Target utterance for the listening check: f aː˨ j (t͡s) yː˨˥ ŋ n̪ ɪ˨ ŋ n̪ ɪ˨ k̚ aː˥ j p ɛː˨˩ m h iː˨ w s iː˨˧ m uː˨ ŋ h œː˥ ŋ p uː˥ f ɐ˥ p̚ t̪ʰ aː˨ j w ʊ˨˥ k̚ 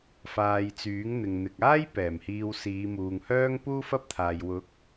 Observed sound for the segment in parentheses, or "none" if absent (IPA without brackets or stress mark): t͡s